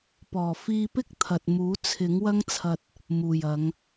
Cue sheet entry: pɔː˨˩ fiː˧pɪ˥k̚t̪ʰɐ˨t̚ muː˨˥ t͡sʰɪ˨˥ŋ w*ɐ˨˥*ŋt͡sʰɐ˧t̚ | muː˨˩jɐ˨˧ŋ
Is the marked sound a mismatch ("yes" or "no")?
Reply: yes